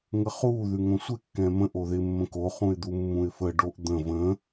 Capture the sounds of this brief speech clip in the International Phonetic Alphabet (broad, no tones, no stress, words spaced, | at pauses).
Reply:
ŋəχu ðʉŋõsʷɪ kːɛ̃mə̃ʔ oðɪ mːə̃ko χũɪ̯d̪umːũɪ̯fə ɖoʔd̪ə̃ və̃